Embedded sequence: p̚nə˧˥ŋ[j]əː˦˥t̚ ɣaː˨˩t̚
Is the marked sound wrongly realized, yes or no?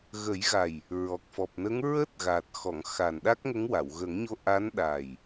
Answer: yes